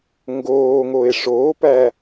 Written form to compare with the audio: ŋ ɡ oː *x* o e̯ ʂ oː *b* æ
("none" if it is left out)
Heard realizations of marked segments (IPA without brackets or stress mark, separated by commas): ŋ, p